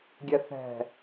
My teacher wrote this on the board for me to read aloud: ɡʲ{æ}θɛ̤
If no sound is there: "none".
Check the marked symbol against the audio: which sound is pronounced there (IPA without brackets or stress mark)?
ɛ